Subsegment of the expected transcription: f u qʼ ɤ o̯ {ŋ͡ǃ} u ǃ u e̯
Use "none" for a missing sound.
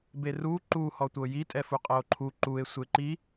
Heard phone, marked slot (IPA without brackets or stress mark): ǃʰ